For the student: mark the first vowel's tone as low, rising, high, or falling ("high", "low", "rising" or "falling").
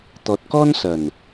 low